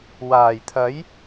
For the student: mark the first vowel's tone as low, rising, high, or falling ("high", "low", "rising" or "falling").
low